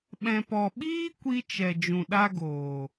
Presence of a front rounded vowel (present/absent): absent